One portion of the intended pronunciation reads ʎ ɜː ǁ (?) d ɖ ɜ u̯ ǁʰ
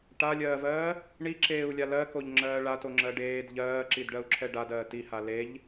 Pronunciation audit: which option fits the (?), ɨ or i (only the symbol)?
i